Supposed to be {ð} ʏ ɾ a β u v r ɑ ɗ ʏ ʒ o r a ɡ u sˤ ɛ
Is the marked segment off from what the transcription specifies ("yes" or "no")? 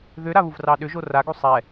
no